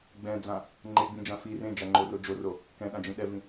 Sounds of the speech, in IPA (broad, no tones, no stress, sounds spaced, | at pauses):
ɡ͡b ɛ̃ d͡z ã | ŋ͡ǃ e ɡ͡b ĩ d͡ʒ ã f i r ẽ d͡ʒ a ŋ͡ǃ o r o d͡ʒ o r o | k ɛ̃ ɗ ã d͡ʒ ĩ ɗ ɛ v ĩ